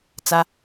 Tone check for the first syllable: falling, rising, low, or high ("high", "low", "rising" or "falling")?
high